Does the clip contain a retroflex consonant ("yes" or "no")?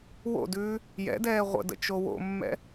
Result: no